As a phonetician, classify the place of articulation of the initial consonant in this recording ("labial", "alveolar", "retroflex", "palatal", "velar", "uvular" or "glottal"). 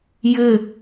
palatal